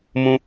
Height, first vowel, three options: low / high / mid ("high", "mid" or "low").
high